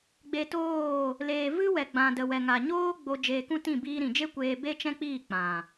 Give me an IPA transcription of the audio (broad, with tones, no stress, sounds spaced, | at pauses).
ɡ͡b e˧ t oː˦˨ | l eː˨ v ɨ˦ w ɛ˨ ɡ͡b ã˨ d ə˨ w ɛ˨ ŋ a˨ ɲ oː˦ ɡ͡b o˧ d͡ʒ eː˧ k ũ˦ t ĩ˦˨ b iː˧ ɾ ĩ˨ d͡ʒ e˦ kʷ eː˧ b e˦ t͡ʃ ɛ̃˦ k͡p iː˦˨ k͡p ã˨